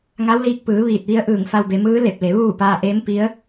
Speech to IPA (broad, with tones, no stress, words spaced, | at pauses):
ŋa˧˥wliː˧k̚ pɯː˩˧ ʋiː˧˩t̚ʋi˧˥ə̯ʔɯː˧˩ŋfa˧w be˩˧mɯː˧˥le˧˩p̚le˩˧ ʋuː˥˨ paː˧ʔeː˧˥mpi˧˥ə̯